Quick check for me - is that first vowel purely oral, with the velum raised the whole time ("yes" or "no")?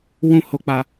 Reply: no